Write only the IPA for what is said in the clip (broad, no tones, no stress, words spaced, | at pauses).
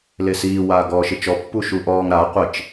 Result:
lesiː waːɡɔːʃɪt͡ʃɔ pːuʃuʔɔːŋ ɾa qʷɪt͡ʃ